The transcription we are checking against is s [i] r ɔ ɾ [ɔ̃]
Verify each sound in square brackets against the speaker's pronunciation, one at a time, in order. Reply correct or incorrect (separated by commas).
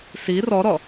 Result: correct, incorrect